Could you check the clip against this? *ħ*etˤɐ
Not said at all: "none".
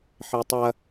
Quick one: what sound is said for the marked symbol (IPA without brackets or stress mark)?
ħ